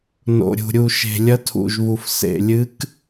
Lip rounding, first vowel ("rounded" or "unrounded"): rounded